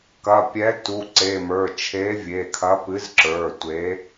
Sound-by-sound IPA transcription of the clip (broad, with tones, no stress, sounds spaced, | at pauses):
k ɐ˩˧˩ pʲ ɛ˨˥ t u˩˧˩ ǀ e˩˧˩ m ə˞˩˧˩ t͡ʃʰ e˨˥ vʲ e˩˧˩ kʰ ɐ˨˥ p ɨ˨˥ z ǁ ə˞˩˧˩ tʷ e˨˥